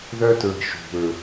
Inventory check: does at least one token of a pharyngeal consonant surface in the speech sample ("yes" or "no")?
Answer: no